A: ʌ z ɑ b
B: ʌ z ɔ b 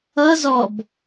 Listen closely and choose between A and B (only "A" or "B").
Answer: B